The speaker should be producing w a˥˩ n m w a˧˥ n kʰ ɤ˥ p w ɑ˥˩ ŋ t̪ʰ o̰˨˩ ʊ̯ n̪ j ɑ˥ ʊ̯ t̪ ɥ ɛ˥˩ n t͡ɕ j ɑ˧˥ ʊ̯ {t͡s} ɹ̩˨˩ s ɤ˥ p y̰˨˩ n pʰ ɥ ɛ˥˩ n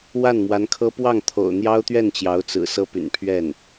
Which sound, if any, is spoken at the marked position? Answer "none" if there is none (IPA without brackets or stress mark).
t͡s